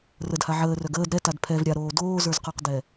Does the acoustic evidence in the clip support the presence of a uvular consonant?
yes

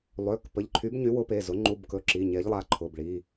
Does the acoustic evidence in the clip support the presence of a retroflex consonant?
yes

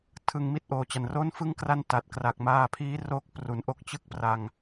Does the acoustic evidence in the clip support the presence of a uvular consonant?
no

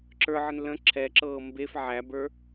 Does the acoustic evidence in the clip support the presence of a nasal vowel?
yes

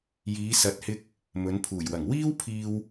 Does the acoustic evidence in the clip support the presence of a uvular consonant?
no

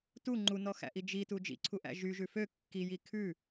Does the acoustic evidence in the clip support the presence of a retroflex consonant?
no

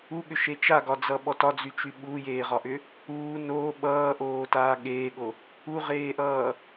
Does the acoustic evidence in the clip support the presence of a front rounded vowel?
yes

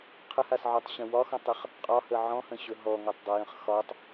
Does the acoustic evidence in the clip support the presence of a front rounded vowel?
no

